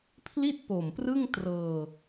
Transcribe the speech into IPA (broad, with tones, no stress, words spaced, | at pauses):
pʰli˥˩t̚po˨˩mprɯ˥˩ŋtrɤː˧